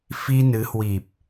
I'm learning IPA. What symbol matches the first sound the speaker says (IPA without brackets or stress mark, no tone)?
f